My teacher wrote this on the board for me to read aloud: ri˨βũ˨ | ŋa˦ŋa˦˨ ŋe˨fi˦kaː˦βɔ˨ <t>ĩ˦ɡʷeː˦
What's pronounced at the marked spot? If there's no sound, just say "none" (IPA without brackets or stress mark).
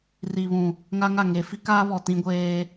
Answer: t